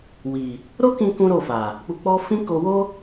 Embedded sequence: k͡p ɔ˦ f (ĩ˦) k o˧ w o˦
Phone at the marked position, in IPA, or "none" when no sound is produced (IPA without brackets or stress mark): ĩ˦